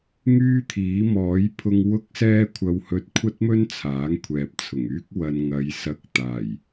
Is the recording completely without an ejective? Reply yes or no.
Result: yes